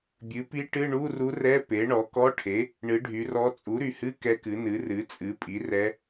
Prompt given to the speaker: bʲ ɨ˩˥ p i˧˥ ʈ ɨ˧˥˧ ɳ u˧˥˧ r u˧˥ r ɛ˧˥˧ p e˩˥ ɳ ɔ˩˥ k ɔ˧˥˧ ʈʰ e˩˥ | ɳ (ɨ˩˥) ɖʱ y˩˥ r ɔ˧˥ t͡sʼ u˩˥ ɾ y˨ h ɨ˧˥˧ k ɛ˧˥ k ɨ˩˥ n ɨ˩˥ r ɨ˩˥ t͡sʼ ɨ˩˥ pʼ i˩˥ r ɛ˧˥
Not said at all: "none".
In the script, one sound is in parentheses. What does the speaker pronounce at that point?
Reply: ɨ˩˥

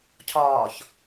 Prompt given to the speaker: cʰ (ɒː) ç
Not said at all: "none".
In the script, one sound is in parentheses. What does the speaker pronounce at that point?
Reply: ɒː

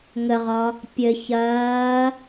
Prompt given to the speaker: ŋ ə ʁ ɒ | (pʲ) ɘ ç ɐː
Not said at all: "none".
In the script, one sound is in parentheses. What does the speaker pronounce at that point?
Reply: pʲ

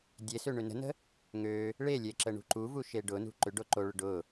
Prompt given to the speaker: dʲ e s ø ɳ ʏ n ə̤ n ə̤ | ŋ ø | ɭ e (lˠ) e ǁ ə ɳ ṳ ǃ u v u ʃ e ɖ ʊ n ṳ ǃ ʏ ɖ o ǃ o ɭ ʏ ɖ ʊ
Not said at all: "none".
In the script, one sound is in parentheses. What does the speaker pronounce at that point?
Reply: lʲ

